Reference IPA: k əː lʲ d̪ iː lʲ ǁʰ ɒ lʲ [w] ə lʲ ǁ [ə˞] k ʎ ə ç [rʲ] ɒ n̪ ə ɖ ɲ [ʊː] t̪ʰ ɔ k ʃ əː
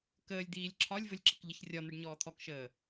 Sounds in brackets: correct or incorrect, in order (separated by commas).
incorrect, incorrect, correct, incorrect